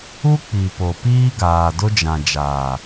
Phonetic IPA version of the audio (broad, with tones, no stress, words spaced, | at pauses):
u˦k͡pi˨ po˨piː˦ɡaː˨ dʊ˦d͡ʒã˨d͡ʒaː˨